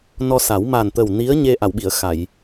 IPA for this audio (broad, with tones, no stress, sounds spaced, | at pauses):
n ɔ˧ s a˨˩˦ w m a˨˩ n t̪ ə˨˩ w n i˧˥ ə̯ ɲ e˧ ʔ a˨˩˨ w ɓ i˨˩˨ ə̯ x a˨˩˨ j